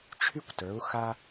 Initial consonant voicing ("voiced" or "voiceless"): voiceless